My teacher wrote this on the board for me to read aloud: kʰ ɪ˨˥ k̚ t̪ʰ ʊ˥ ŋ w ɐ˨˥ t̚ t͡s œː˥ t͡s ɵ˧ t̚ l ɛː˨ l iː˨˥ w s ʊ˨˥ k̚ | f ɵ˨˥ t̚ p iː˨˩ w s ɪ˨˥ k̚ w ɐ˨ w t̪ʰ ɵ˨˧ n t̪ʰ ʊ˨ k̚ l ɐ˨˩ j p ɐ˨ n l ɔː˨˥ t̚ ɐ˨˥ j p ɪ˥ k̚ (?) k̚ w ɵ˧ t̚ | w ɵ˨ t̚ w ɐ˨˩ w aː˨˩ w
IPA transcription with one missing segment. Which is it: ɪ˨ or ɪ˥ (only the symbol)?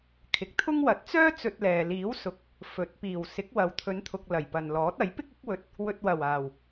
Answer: ɪ˥